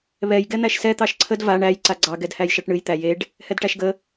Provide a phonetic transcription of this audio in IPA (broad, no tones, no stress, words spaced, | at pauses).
βɛj ɡɛn̪æʃsɛ t̪ɑʃǀʰəd va ɳæj ǀaɡ͡ǀɑ ɡɛdhæjʃɑʈɳɨj t̪æjeɖ | hɛdʈæʃɡə